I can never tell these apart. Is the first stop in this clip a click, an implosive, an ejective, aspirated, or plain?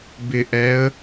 plain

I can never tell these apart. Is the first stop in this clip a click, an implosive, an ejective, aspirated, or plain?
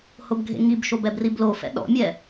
plain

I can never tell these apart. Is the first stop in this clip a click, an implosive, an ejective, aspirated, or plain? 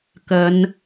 plain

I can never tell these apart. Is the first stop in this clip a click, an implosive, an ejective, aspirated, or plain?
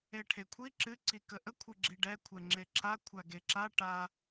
aspirated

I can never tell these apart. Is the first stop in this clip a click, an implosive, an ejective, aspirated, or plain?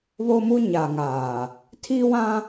aspirated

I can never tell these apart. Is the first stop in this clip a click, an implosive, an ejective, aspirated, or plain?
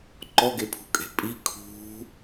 click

